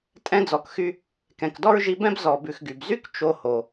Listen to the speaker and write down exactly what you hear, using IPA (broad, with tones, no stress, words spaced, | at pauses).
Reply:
tʼɛ̃˦d͡zɔ˨kxy˦ | kɛ̃˨kdɔ˥ɹʒi˦bɛ̃˥b zɔ˨bʉ˨xɡy˩bzy˥k t͡ʃo˦ho˩